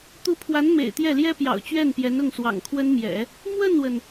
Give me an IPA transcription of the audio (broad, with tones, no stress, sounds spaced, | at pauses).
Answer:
t̪ u˧˥ pʰ w a˧˥ n m ḛ˨˩ ɪ̯ t̪ j ɛ˥˩ l j ɛ˥ p j ɑ̰˨˩ ʊ̯ t͡ɕ ɥ ɛ˥˩ n p j ɛ˧˥ n ʊ˥˩ ŋ s w ɑ̰˨˩ ŋ kʰ w ə˥ n m j ɛ̰˨˩˦ | m w ə˥˩ n w ə˩ n